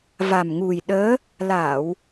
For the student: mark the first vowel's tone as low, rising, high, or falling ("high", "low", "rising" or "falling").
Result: low